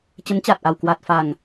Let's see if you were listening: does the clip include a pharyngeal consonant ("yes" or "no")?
no